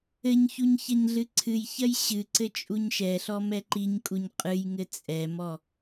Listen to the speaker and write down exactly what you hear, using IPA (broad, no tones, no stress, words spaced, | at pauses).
ɘɲçuɲ çɐɲɮɨǀʰɨjçɐj ɕɨǀɘ t͡ʃʼuɲʃɛɬɔ mɛǃiɲkʼuɲ qʼɨjŋɘ t͡sʼɛmɔ